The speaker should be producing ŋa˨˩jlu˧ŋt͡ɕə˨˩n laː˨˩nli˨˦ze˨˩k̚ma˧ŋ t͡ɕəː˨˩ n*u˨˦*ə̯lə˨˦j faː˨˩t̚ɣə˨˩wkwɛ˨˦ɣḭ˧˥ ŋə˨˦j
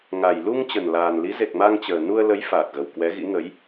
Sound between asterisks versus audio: incorrect: u˧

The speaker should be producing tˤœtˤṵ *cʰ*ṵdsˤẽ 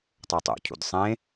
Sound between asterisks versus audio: correct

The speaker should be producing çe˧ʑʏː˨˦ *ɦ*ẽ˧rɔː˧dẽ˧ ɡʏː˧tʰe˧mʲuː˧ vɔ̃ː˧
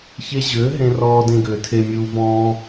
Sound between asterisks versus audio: correct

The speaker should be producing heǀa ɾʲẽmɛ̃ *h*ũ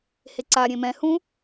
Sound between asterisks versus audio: correct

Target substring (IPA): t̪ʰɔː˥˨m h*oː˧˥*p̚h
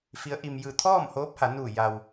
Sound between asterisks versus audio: correct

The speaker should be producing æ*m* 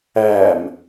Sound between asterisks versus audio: correct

